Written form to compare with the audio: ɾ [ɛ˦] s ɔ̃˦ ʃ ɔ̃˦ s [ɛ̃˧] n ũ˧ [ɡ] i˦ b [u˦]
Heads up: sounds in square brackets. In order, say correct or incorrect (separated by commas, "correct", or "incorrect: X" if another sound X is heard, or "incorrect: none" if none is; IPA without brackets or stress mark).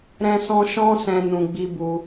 incorrect: ɛ̃˦, correct, incorrect: ɡ͡b, correct